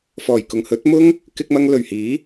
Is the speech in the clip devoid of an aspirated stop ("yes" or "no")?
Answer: yes